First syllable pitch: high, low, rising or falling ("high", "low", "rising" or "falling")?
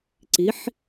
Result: rising